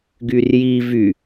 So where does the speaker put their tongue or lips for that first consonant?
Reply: velum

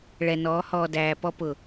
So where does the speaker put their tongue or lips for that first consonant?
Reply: retroflex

